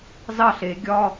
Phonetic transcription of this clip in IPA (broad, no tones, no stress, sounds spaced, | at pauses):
z ɑ ɬ e ɡʲ ɒ